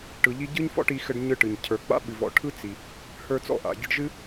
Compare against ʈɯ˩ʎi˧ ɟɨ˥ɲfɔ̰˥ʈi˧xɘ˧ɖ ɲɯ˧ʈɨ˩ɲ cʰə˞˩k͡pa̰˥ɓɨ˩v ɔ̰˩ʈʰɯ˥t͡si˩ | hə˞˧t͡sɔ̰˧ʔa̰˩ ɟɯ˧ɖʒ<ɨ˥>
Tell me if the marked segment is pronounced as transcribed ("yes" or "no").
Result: yes